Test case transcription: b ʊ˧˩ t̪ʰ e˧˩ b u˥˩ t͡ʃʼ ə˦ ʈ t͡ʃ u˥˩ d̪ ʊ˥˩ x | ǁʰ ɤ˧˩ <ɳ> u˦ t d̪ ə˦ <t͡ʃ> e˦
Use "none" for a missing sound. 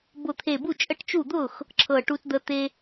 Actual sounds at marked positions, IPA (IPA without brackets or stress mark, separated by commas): ʈ, t̪